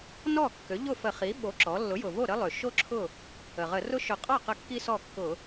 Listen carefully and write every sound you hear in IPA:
n ɔ˥˩ kː ø˩˥ ʎ ʊ˥˩ f ə˧˩˧ χ i˩˥ ɓ o˩˥ ǁ ɔ˩˥ lː ʊ˩˥ j ʊ˩ v o˥˩ ɾ ə˥ lˠ ø˩ ʃ o˥ ǁʰ ʊ˥˩ | ə˩ ʁ ə˧˩˧ r ʊ˥ ʃ ʊ˧˩˧ qʼ ɔ˥˩ q ə˥˩ kː i˥ s ɔ˥˩ kː ʊ˧˩˧

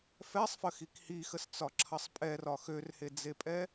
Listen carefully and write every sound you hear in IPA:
f ɛ sˤ f ə x i k h i x ə s t͡s ɒ ǁʰ ɐ sˤ pʼ ɛ r ɒ x ø r h e d͡z e pʼ ɛ

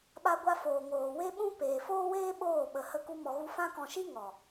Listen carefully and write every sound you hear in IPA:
ɓ a˧ ɡʷ a˧ f oː˨ ŋ oː˨ w e˦ ɓ ũ˦ p eː˨ f oː˦ w eː˦ ɓ oː˦˨ ɓ ə˨ h ə˧ k u˦ m ɔ˧ ɣ u˦ f ã˦ k ɔ̃˧ ʃ i˦ ŋ ɔ˨

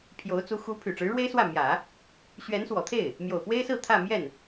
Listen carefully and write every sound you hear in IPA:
pʰ j o˧˥ ʊ̯ t͡s u˧˥ x u˧˥ pʰ y˨˩ ʈ͡ʂ ɻ̩˧˥ ɻ w e˥ ɪ̯ s w ä˥˩ m j ä˨˩˦ | ɕ ɥ ɛ˧˥ n s w ɔ˨˩ t̪ʰ e˥˩ ɪ̯ | m j o˨˩ ʊ̯ p w e˥ ɪ̯ s ɹ̩˥˧ t̪ʰ ä˥˧ m j ɛ˥˩ n

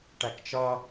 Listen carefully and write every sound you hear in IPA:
ʈ æ k t͡ʃ ʌ

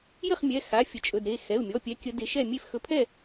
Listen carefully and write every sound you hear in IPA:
j ə˥˨ χ mʲ ɛ˩˧˩ x a˩˧˩ fʲ ə˨˦ t͡ʃʼ ɵ˩˧˩ d ɾ e˩˧˩ x ɛ˩˧˩ u̯ mʲ ɔ˩˧˩ pʲ ɛ˨˦ kʲ ə˨˦ d e˨˦ ʃ ɛ˥˨ mʲ e˥˨ f x ɵ˨˦ pʰ ɛ˥˨

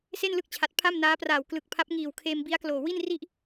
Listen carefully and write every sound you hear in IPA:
s e˥˩ n l ɯ˥˩ k̚ t͡ɕʰ a˨˩ t̚ pʰ a˥˩ m n aː˦˥ p r aː˨˩ w k l ɯ˨˩ k̚ pʰ a˦˥ p̚ ŋ iː˨˩ w kʰ eː˧ m b i˦˥ a̯ k l oː˨˩ w i˥˩ n r i˥˩ ʔ

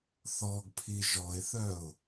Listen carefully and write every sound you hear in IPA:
θ ɔ ɡ pʰ i ʒ ɔ ɪ̯ θ œ ʊ̯

